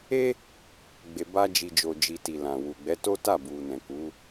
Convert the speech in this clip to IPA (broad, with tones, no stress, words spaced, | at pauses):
e˦ | ɡ͡be˨ba˧ d͡ʒi˨d͡ʒo˨d͡ʒi˨ ti˨lã˨ wu˨ɡ͡bɛ˨˦to˦ta˦˨ bu˨nɛ̃˨ ku˨˦